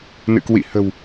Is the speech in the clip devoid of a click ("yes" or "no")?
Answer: yes